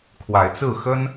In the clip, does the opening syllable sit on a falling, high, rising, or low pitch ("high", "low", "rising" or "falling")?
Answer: rising